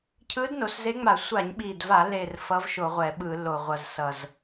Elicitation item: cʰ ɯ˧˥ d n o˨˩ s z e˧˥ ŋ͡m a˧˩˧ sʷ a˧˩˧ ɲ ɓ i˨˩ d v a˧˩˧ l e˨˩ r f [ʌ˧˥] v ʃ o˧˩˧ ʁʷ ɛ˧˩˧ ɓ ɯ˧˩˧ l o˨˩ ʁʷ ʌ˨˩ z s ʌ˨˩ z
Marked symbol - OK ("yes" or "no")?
yes